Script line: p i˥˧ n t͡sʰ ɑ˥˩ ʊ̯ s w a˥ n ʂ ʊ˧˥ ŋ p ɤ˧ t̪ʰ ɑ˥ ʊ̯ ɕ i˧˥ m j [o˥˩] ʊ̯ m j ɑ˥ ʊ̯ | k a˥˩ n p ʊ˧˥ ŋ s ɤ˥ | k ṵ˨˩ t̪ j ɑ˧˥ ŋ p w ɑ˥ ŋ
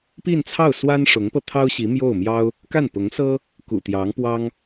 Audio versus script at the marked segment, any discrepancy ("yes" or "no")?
no